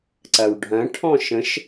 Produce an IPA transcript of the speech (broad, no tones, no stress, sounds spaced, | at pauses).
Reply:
ǀ ɐ w ɖʱ ɐ̃ ʈʰ ɔ̃ ʃ ə̃ ʃ